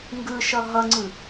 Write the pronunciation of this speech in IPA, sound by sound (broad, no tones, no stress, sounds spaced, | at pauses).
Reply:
ŋ ɡ ɯ ʃ ʌ ɦ ʌ ŋ͡ǀ ɯ